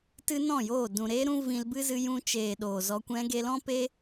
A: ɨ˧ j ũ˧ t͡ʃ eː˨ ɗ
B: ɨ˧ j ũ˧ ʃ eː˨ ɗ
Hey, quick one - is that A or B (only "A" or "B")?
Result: A